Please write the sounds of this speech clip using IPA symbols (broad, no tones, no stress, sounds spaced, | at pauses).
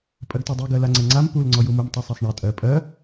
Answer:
pʼ ɜ ɡ t ɔ dˤ u ɡ ɜ l a ŋ͡ǀ ɛ ŋ͡ǀ a m p u l ŋ͡ǀ ɔ j u m u m tˤ u sˤ a sˤ ɳ a tʼ ɜ pʼ ɜ